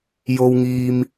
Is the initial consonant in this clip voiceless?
no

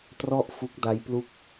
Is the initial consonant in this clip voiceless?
yes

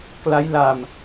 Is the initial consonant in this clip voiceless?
yes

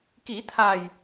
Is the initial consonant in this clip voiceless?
yes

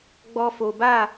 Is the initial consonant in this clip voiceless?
no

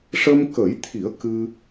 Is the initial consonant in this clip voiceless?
yes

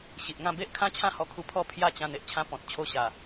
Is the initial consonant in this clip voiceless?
yes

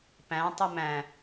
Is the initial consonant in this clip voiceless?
yes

